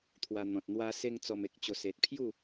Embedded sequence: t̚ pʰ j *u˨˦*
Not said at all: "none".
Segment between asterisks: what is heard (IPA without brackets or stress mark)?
u˥˧